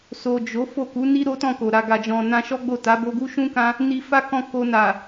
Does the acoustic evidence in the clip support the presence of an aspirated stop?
no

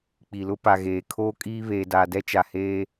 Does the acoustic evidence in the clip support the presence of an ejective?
yes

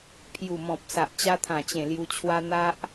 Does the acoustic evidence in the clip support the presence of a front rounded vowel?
no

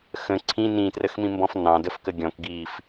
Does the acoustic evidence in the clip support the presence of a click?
yes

